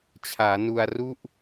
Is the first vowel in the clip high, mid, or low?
low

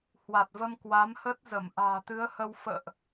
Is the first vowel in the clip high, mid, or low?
low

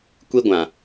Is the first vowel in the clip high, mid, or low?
high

